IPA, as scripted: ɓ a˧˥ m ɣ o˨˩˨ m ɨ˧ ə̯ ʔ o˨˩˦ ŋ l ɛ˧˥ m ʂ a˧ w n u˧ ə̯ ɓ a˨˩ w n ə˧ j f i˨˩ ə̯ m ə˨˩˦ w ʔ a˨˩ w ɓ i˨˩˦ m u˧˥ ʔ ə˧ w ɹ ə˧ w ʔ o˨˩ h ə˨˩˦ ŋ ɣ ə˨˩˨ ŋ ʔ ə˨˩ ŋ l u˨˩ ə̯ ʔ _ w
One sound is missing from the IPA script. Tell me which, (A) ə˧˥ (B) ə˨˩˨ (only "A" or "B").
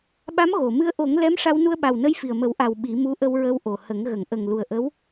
A